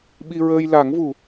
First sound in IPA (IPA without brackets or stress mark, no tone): ɓ